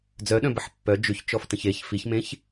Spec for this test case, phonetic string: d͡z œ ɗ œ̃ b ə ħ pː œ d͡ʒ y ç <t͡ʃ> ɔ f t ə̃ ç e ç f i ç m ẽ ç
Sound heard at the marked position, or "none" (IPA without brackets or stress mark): t͡ʃ